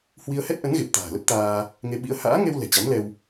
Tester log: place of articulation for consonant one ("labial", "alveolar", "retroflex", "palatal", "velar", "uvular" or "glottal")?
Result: glottal